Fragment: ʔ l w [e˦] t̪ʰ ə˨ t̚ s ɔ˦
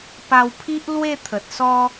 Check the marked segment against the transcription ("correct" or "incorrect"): incorrect